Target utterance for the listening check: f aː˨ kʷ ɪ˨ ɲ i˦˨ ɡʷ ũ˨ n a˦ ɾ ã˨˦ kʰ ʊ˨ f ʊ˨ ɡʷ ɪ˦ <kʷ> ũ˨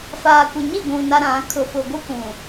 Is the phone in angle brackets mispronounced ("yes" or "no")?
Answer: no